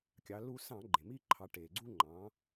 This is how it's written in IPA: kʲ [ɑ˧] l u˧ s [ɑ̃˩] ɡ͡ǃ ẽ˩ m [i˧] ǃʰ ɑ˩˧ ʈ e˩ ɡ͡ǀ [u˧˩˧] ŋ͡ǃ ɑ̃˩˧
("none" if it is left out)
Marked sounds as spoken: ɑ˩˧, ɑ̃˧˩˧, i˧, u˧

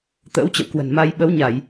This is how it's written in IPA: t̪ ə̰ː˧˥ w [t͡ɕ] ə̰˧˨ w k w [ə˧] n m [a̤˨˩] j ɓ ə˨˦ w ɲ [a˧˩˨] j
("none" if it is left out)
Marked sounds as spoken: t͡ɕ, ə̤˨˩, a˧, a˧˩˨

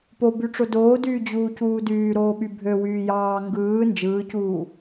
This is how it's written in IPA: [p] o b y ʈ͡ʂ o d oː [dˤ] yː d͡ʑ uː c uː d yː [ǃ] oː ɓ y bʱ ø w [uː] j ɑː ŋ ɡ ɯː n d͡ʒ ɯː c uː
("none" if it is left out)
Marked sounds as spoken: p, d, ɾ, yː

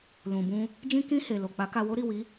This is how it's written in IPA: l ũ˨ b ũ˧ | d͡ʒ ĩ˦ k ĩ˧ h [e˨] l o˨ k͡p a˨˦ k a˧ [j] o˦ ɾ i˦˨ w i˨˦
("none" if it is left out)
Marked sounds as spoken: e˨, w

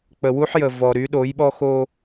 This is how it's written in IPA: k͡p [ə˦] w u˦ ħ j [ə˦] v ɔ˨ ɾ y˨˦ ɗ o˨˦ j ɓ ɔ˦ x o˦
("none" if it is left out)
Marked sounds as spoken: ə˨, ə˨

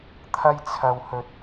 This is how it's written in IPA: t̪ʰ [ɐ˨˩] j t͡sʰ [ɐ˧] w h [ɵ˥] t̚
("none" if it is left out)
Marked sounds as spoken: ɐ˥, ɐ˧, ɵ˧

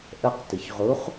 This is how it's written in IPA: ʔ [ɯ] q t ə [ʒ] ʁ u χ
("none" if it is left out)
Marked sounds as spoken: ə, ç

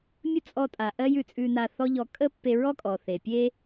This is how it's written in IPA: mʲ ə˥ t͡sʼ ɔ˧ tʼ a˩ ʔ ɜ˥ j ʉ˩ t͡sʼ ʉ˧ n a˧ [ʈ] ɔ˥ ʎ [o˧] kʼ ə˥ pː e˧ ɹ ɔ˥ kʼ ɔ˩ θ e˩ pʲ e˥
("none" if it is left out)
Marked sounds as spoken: θ, ɔ˧

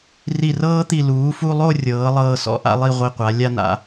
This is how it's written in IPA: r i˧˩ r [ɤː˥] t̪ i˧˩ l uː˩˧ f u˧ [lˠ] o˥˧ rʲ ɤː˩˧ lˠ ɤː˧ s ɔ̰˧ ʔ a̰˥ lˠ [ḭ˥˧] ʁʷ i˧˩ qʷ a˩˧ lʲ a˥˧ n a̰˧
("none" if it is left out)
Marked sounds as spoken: ɤː˥, lˠ, i˥˧

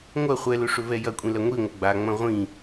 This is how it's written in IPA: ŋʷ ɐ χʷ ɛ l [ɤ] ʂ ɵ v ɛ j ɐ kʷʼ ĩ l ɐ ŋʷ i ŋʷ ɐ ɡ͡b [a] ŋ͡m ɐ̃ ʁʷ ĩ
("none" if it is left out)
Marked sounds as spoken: ɵ, a

